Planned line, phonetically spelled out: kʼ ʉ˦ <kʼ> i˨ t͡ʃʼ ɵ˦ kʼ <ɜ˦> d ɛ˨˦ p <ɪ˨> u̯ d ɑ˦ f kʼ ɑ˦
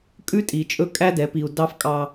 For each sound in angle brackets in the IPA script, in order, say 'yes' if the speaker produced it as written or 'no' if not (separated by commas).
no, no, no